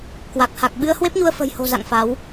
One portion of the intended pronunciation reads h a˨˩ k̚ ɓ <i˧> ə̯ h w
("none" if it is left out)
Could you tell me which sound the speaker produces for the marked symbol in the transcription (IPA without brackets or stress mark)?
ɨ˧